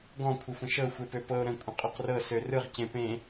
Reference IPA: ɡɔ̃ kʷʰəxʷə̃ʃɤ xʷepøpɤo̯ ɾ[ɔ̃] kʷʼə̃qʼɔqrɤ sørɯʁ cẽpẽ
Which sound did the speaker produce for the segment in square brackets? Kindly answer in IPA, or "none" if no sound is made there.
ə̃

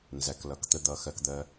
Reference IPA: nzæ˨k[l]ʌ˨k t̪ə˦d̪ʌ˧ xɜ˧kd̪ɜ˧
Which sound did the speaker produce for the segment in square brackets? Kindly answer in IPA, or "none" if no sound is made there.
l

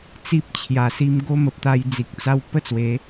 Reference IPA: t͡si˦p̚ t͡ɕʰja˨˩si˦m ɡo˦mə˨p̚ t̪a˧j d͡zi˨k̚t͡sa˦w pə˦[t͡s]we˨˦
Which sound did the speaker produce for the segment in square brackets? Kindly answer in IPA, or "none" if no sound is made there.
t͡s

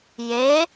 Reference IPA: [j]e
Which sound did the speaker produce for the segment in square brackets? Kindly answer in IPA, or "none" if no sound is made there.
j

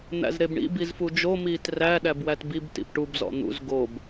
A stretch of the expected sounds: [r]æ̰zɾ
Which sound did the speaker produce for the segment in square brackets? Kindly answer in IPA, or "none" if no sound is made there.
n̪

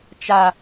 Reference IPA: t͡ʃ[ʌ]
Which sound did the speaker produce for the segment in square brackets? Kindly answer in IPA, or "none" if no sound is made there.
a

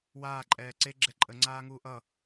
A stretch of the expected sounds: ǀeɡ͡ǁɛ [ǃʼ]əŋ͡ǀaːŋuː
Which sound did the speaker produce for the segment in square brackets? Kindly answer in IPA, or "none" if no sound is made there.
ǃʼ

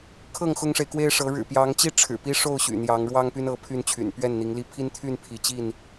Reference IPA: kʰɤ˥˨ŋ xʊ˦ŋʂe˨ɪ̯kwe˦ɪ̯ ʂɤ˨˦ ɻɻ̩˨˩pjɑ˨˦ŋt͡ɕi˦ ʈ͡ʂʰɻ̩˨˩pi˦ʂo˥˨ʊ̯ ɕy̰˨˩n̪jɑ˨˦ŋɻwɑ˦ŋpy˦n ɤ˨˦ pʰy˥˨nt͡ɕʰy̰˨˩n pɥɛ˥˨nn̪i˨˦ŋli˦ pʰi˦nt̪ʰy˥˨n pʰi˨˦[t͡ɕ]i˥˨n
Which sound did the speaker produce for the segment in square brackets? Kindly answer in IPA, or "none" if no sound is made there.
t͡ɕ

